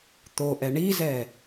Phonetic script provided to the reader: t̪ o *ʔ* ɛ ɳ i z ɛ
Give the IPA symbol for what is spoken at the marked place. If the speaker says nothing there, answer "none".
ʔ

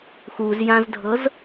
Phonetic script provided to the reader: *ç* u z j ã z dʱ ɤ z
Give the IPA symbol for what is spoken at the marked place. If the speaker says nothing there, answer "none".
x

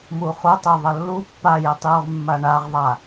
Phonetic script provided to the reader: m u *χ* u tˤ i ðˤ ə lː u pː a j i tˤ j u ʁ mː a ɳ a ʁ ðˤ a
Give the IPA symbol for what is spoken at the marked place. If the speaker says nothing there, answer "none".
χ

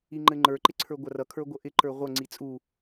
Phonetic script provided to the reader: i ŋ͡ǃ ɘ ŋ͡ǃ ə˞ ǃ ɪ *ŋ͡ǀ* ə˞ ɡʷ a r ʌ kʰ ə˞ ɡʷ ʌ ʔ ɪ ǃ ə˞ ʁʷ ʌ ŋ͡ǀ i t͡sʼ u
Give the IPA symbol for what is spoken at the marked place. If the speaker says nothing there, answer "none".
ǀʰ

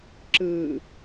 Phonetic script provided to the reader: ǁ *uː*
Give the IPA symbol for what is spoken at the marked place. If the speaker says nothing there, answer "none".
ɯː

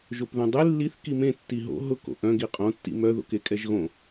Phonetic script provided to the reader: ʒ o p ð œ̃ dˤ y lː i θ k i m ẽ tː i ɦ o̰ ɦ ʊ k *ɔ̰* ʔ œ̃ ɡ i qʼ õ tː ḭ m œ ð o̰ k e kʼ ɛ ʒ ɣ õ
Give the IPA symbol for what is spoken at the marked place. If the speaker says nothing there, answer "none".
o̰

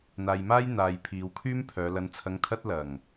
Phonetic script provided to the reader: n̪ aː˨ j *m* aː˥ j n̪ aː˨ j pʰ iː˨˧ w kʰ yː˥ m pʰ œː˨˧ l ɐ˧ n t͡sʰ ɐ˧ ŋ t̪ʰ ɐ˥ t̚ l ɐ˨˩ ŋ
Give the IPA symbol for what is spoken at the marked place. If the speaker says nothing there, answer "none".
m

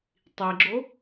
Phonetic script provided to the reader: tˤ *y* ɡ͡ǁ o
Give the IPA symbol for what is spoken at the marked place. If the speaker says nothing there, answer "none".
i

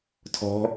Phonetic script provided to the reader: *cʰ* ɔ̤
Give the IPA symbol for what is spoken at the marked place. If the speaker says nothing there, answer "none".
tʰ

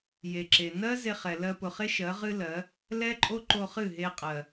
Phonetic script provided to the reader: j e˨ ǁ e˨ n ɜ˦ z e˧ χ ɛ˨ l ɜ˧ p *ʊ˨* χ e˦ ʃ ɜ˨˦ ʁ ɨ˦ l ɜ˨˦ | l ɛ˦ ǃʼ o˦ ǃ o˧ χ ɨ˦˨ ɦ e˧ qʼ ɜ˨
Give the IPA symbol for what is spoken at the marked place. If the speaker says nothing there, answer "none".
ʊ˨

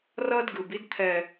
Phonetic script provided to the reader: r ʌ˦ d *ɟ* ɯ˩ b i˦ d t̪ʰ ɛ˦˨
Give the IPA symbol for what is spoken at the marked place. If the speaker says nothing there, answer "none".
ɡ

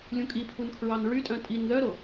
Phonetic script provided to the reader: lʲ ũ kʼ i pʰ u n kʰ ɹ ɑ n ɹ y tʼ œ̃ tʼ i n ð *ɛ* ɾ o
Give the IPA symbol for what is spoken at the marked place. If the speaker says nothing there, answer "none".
œ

